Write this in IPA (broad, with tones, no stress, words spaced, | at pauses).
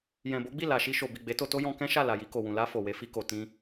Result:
jɛ̃˨bo˨˦ɡ͡bi˦˨ la˨ ʃi˧ʃo˨bi˨ ɡ͡be˨˦to˧to˦jɔ̃˧ kɛ̃˦ʃa˦˨ la˨ji˧ko˨wũ˨ la˧ fo˨we˧fi˧ko˨ tĩ˧